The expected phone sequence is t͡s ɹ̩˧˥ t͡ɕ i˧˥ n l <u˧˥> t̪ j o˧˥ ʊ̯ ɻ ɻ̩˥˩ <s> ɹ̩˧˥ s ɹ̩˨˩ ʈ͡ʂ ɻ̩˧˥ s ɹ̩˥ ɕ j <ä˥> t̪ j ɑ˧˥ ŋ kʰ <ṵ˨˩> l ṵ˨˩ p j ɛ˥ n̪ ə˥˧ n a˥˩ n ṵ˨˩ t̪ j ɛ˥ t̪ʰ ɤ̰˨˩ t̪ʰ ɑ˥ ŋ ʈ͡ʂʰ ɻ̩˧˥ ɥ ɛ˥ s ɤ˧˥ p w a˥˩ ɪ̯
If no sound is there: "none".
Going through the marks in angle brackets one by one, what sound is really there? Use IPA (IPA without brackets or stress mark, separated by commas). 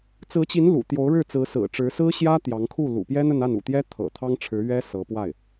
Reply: ṵ˨˩, t͡s, ä˥, u˥˩